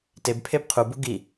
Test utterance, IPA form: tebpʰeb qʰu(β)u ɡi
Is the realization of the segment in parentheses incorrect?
yes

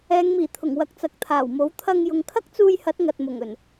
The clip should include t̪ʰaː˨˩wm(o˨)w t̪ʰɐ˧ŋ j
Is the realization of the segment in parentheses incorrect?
yes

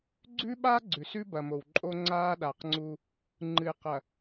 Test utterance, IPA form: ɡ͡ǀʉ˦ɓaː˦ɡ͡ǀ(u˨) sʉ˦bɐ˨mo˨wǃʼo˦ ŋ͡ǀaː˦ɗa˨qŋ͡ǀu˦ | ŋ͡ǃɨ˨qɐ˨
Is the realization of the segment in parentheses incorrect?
yes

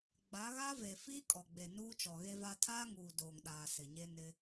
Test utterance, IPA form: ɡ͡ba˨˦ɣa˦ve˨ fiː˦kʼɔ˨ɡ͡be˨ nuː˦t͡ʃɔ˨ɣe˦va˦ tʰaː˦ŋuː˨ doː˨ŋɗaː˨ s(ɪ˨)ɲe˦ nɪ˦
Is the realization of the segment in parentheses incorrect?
no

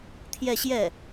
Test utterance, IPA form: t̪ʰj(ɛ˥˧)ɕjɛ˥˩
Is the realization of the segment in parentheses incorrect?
no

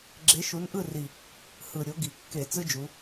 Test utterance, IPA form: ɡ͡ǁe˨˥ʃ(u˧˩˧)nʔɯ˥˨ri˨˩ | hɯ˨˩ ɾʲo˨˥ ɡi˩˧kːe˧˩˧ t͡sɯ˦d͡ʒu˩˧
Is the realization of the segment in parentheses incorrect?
yes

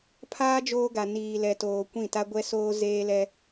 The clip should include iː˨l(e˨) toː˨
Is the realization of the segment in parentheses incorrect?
yes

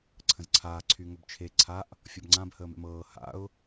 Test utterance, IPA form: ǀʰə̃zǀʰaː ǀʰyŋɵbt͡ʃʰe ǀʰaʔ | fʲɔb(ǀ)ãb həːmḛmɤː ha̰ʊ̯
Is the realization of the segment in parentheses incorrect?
yes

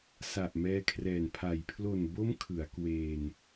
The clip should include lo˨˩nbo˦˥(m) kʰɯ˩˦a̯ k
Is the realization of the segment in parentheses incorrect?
no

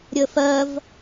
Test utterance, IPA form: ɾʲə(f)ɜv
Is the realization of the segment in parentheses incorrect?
no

